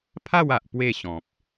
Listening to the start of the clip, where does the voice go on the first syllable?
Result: falling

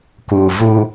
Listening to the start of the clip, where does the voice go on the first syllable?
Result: low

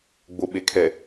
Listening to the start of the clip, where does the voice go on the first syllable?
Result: low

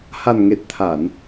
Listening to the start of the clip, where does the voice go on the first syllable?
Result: low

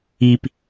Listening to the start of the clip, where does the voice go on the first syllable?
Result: high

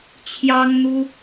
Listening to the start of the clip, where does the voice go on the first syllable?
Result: high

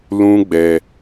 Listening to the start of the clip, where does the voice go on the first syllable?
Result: high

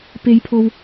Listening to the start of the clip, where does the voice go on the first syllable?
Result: high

